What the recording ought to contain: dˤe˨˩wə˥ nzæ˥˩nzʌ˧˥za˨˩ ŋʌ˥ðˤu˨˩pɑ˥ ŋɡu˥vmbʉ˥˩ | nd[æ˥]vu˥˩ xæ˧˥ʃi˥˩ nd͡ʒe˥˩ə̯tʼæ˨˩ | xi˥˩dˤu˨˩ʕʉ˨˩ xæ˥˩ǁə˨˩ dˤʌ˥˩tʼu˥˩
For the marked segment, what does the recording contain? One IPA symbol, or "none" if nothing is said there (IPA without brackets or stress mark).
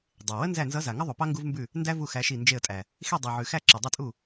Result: æ˥